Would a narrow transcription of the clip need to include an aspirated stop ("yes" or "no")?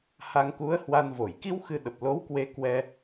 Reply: no